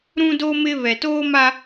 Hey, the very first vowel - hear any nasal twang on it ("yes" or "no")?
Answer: yes